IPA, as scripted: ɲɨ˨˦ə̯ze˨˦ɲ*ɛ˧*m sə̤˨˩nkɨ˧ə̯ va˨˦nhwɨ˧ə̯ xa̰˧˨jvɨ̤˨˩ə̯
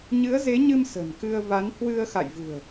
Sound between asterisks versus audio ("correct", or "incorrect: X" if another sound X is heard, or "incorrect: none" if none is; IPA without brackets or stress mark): incorrect: ɨ˧